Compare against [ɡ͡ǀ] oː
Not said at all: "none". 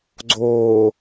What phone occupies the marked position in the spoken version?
ɡ͡ǀ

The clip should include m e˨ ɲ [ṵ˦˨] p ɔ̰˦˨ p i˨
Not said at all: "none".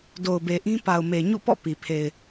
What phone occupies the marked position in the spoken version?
ṵ˦˨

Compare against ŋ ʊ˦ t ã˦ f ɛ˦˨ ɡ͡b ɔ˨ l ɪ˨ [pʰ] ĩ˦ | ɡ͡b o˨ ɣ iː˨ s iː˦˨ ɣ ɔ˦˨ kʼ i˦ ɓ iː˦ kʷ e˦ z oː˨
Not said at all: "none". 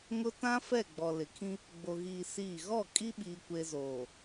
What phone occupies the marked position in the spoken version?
kʰ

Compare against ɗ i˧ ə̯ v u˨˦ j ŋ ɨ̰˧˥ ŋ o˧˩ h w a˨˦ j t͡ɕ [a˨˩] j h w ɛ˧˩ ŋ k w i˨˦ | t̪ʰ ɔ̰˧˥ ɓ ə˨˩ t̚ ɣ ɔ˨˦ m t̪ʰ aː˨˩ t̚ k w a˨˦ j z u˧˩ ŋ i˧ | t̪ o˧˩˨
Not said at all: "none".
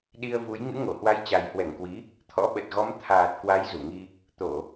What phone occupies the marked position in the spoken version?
a˨˩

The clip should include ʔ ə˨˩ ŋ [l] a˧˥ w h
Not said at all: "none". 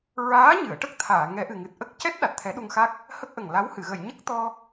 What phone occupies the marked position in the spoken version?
l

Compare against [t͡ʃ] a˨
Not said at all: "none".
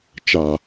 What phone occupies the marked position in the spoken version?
t͡ʃ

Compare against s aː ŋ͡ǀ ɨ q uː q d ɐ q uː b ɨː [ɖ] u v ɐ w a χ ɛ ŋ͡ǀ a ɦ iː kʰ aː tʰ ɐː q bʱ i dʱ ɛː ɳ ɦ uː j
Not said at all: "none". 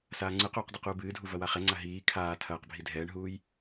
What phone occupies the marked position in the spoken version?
dʱ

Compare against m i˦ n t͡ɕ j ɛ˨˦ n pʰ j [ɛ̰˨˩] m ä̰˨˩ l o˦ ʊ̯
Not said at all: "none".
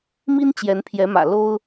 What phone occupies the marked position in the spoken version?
ɛ˨˦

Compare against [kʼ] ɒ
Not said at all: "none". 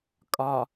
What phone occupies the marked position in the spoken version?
kʼ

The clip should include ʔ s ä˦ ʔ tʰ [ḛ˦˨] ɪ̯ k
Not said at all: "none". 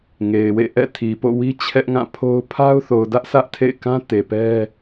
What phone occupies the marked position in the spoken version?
ḛ˦˨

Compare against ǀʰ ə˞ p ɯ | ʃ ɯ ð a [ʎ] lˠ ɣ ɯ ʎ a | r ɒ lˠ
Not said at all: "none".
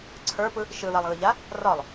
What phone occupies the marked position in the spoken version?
none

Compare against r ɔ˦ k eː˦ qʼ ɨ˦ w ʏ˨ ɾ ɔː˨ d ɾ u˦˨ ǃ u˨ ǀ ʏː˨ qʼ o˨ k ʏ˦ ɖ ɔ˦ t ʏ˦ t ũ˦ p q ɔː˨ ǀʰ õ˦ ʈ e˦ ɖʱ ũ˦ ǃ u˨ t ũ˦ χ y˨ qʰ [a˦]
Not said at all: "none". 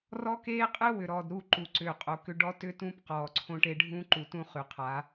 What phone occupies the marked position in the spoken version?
a˨˦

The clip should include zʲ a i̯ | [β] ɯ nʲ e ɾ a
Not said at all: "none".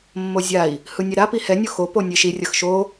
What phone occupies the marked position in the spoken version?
h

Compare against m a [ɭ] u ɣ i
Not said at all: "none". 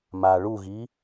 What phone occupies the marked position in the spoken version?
ɭ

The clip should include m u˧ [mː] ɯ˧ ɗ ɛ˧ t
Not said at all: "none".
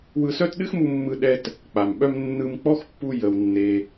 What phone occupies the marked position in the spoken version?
mː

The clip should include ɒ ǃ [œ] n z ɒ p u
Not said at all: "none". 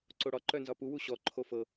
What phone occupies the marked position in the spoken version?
œ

